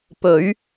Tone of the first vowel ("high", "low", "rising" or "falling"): rising